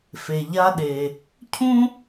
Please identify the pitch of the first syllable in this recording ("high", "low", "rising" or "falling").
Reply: low